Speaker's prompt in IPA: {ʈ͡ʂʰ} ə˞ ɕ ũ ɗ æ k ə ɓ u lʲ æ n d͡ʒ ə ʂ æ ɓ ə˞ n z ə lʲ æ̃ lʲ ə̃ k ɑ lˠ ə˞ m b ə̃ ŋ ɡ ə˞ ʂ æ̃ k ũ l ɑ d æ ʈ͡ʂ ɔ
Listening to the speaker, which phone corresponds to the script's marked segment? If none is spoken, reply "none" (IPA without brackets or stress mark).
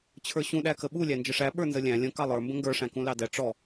t͡ɕʰ